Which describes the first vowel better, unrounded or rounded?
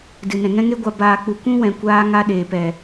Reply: unrounded